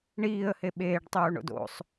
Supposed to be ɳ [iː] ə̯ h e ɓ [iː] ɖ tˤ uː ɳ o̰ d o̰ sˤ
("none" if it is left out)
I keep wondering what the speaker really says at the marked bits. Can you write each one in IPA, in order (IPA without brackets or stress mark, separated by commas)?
iː, eː